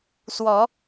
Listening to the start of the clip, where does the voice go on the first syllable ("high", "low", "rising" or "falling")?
rising